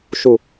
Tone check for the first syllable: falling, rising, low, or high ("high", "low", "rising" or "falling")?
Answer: falling